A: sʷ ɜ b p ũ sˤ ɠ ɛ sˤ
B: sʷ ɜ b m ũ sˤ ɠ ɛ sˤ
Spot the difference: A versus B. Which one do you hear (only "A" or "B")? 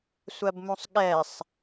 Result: B